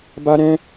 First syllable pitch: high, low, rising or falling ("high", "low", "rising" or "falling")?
high